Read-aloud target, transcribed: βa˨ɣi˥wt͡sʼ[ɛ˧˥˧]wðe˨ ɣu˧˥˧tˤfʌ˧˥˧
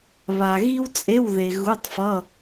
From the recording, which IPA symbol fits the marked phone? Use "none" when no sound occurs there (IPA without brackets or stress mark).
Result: e˧˥˧